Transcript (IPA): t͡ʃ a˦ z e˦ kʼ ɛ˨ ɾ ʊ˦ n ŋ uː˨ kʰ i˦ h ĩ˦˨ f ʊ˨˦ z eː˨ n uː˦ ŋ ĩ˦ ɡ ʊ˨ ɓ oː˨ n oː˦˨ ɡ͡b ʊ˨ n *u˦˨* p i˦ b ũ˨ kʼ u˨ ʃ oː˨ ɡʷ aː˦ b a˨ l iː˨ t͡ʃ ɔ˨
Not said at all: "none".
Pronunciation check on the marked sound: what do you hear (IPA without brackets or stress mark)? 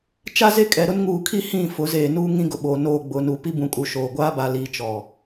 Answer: u˨˦